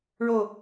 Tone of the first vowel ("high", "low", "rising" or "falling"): falling